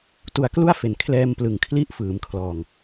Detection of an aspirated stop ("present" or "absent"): present